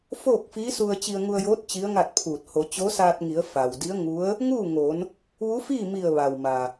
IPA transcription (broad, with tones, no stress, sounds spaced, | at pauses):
f oː˥˨ k̚ f iː˧˥ s u˧ ə̯ t͡ɕ i˧ ə̯ ŋ u˧ ə̯ j oː˧˥ t̚ t͡ɕ i˧˥ ə̯ ŋ a˥˨ t̚ pʰ uː˧˩ t̚ h o˩˧ t͡ɕ o˧˥ s aː˧ t̚ ŋ i˩˧ ə̯ f a˩ w d i˧˥ ə̯ ŋ u˧˥ ə̯ | ŋ uː˥˨ ŋ o˩˧ n | ʋ u˧˥ f iː˥˨ m i˧˩ ə̯ ʋ a˩ w m a˩